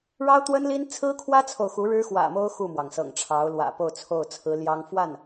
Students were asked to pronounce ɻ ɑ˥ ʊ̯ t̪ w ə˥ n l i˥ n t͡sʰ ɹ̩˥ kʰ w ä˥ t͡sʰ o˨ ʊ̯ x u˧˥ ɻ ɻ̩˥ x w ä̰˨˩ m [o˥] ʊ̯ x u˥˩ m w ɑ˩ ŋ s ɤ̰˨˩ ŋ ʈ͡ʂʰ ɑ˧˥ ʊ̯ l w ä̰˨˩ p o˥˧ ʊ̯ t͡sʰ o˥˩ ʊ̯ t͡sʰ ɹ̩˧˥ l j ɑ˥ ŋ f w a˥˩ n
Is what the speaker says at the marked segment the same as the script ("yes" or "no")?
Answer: yes